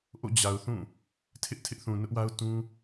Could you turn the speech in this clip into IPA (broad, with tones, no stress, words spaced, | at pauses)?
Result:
ʔo̰˦˨ d͡ʑa˨ʊ̯θũ˦˨ | tʰɪ˦ʔ tʰɪ˦ʔθũ˨nʊ˦ʔwa˦ʊ̯ tũ˦